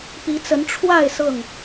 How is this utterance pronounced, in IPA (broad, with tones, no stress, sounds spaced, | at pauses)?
p i˨˦ t͡s ə˨˦ n ʈ͡ʂʰ w a˥˨ ɪ̯ s ɤ˥˨ ŋ